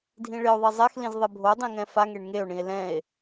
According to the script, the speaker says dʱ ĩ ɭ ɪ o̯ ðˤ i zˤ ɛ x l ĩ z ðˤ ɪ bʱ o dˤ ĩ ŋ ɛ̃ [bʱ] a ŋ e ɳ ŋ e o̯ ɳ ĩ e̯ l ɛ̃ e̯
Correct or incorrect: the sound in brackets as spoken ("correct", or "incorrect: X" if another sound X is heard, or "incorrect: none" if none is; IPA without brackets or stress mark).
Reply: incorrect: f